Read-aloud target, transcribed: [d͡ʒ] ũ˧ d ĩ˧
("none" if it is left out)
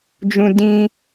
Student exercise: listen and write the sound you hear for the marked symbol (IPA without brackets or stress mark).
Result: d͡ʒ